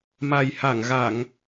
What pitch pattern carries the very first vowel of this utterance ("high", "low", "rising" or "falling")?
low